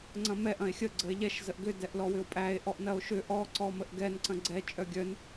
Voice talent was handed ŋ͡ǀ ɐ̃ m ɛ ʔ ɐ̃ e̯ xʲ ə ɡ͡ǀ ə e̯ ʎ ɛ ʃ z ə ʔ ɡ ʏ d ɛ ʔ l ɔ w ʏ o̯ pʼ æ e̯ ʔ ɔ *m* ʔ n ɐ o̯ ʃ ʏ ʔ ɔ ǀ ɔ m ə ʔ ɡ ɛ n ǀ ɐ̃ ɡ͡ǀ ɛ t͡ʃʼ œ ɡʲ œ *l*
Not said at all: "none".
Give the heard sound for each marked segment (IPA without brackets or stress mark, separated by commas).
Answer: none, n